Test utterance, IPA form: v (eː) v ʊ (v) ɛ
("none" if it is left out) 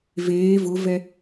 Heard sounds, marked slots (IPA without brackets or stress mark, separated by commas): eː, v